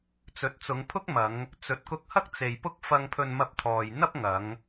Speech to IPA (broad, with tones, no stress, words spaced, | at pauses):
t͡sɵ˨˥t̚t͡sʊ˨˧ŋpʰʊ˥k̚ mɐ˨˧ŋ | t͡sɵ˨˥t̚kʊ˧k̚hɐ˥k̚ t͡se˨jpʊ˥k̚ fɐ˧ŋpʰɵ˧nmɐ˧p̚t̪ʰɔː˨j n̪ɐ˥p̚ŋɐ˨˧ŋ